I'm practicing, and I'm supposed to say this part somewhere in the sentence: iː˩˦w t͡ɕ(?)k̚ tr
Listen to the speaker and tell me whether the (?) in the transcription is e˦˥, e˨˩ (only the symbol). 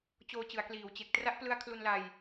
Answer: e˨˩